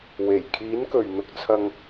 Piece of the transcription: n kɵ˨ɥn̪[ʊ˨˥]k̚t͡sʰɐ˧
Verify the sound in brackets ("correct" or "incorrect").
incorrect